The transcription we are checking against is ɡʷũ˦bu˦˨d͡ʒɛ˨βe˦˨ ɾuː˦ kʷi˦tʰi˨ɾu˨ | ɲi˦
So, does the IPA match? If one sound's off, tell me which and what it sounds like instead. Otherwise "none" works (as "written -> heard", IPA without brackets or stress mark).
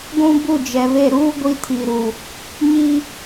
kʷ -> ɡʷ